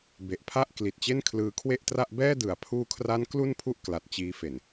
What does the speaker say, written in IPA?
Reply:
b e˨˩ ʔ pʰ a˥˩ ʔ k l i˨˩ t̚ t͡ɕ e˥˩ n kʰ l ɯː˧ kʰ w e˥˩ ʔ t r a˥˩ ʔ b ɛː˥˩ d ɯ˨˩ a̯ pʰ uː˧ kʰ r a˦˥ n k l u˥˩ n pʰ u˥˩ ʔ k l a˨˩ t̚ t͡ɕ iː˦˥ f e˨˩ n

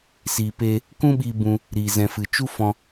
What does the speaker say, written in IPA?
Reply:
s iː˨ p eː˧ | k ũ˦ ɓ iː˧ b ũ˧ | ɾ iː˨ z ɛ̃˨ f ɨ˨ t͡ʃ u˦ f ɔ̃˧

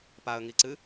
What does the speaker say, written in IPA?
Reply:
p a ə̯ ŋ i ǀ ɨ

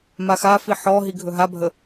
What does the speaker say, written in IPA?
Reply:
m a x a f i ħ ɔ ɦ i ɡʱ ɵ ɦ a bʱ ə

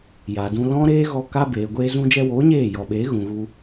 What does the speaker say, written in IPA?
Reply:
j a˨ d ũ˧ l ɔ̃˦ ɾ eː˦ ɣ ɔ˧ k a˧ b eː˨ ɡʷ eː˧ z ũ˧ d͡ʒ ɛ˧ w oː˨˦ ɲ eː˦˨ j ɔ˨ ɓ eː˨˦ ɣ ũ˨ ɣ u˧

